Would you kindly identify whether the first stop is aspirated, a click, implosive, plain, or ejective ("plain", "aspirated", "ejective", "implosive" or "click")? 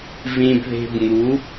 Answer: plain